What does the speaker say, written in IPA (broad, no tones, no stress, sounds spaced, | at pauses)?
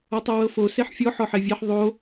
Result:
ɔ tˤ o w ɤ f o s e ħ fʲ ɔ ħ ɔ ħ e vʲ e ħ ðˤ o